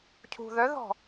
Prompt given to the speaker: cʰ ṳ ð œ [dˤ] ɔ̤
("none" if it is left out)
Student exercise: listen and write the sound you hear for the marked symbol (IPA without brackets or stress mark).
ð